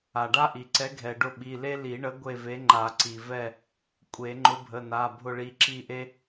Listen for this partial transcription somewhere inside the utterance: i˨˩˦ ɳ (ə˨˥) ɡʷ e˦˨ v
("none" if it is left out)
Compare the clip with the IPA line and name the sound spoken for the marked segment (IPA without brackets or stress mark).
ə˨˥